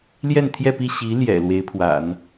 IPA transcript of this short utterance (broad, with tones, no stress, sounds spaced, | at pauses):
l j ɛ˥˧ n t̪ʰ j ɛ˥˧ p i˥˩ ɕ i˧˥ l j ɛ̰˨˩ l w e˧˥ ɪ̯ pʰ w a̰˨˩˦ n